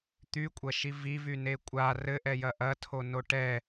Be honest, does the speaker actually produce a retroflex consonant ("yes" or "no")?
yes